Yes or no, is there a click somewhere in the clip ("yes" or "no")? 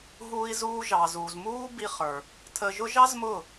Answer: no